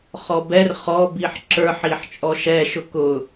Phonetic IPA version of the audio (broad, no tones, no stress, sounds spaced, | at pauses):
χ ɔ b ɛ r χ ɔ b i ħ ǁ ə˞ ħ i ħ t͡ʃʼ ɔ ʃ ɛ ʃ ʊ k ʊ